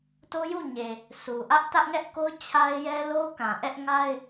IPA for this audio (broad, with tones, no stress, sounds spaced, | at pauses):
t o˦ j u˦˨ ɲ e˨ | s u˨ ʔ ä˦ ʔ t ä˦ ʔ ŋ ɛ˦ ʔ k o˦ ʊ̯ t͡ɕʰ a˦ ɪ̯ j ɛ˦ l o˦ k ã˨ ʔ ɛ˦ ʔ ŋ a˦ ɪ̯